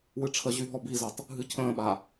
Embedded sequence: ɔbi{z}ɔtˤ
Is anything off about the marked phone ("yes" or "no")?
no